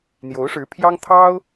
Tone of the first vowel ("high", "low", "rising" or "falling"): rising